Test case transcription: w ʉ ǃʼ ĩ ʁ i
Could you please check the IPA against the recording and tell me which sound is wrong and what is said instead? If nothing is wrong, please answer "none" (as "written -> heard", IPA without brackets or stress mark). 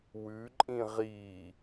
none